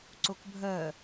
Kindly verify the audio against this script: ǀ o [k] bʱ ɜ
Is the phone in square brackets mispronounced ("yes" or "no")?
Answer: no